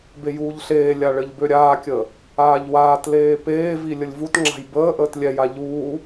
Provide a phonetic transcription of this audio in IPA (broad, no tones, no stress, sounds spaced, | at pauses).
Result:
b e j uː ʎ ɬ eː lʲ a ɭ ɘ ʎ b ø ɾʲ aː kʲ əː | aː ʎ w aː t l eː p eː v i lʲ ə lʲ v u t ŋ͡ǁ a̤ j b əː ʔ əː t lʲ ɛ j a ʎ uː